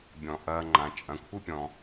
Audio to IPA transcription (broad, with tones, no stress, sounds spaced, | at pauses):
bʲ ɔ̃˩ ʔ ɐː˨ ŋ͡ǃ ã˩ t͡ʃʼ ɐ̃˨ kʷʰ ɨ˥ pʲ ɔ̃˨